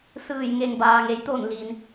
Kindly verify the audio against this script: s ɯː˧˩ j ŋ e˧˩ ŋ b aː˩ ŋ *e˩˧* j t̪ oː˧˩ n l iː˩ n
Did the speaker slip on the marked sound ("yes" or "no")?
no